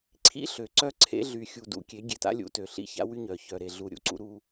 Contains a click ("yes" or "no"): yes